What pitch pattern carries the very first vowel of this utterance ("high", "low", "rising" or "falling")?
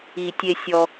low